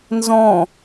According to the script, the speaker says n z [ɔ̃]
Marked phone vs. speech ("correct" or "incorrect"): correct